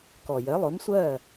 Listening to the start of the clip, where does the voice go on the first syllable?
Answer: low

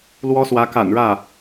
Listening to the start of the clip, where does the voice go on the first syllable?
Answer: high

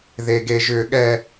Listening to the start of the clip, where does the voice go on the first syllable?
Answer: high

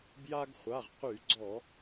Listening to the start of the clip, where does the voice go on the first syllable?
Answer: high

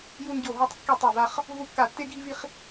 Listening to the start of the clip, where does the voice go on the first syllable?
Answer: high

